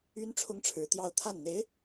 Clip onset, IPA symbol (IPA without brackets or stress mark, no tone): y